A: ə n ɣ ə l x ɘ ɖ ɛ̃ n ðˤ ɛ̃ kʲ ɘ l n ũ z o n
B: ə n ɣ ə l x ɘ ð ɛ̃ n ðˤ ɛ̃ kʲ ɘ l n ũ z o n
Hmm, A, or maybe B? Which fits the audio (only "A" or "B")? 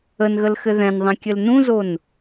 B